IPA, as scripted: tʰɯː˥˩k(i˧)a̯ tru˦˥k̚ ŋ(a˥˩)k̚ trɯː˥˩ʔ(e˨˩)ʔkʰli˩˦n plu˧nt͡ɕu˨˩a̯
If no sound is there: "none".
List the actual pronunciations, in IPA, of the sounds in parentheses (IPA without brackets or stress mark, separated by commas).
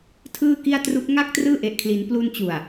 i˥˩, a˥˩, e˨˩